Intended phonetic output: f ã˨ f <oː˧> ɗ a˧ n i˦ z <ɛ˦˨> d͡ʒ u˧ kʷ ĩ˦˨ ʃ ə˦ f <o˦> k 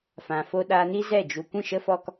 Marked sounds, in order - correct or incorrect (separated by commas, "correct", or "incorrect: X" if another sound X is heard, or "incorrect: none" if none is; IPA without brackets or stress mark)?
incorrect: o˧, correct, incorrect: ɔ˦